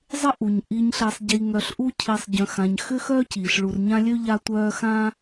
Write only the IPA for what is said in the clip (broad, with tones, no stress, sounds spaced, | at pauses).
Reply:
zˤ ɪ˥ ʔ u˩ ɲ ʔ i˨ ɲ ɬ e˨ sˤ ɟ i˨ ŋ œ˨ ɬ ʔ u˦ cʰ i˨ sˤ ɟ œ̃˨ x ã˨ ɲ x ʏ˥ x œ˥ c iː˩ ɬ ɭ u˨ r ɲ ã˦ lʲ ø˥ ʎ a˦ tʷ œː˦ x ãː˥